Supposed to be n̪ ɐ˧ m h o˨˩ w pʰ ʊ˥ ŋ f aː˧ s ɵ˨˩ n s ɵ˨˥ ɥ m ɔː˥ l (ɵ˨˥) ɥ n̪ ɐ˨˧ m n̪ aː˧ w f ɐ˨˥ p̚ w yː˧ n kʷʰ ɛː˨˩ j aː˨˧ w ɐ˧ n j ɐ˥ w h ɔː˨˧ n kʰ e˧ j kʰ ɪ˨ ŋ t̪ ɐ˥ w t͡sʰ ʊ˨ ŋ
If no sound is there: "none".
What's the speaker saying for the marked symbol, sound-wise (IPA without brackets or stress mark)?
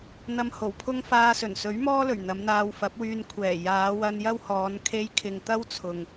ɵ˨˩